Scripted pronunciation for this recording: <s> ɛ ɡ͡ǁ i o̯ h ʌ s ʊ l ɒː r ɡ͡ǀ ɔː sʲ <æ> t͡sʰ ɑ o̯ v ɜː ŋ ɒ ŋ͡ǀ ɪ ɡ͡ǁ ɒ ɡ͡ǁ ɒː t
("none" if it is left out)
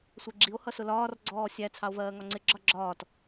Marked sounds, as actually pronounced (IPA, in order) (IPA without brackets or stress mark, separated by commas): sʷ, æ